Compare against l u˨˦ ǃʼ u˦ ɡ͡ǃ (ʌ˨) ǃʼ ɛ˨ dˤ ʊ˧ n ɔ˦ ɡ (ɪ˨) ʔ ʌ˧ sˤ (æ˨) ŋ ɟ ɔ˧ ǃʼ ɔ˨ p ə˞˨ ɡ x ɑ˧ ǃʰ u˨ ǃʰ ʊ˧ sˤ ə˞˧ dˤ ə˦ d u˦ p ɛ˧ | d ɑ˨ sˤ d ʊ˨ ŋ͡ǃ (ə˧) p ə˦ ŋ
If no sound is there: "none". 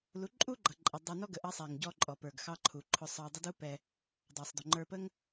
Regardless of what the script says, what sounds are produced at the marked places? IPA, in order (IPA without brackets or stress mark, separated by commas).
ʌ˨, ə˨, æ˨, ə˞˧